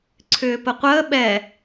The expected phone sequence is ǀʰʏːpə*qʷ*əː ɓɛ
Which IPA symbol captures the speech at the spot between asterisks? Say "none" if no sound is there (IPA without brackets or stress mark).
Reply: qʷ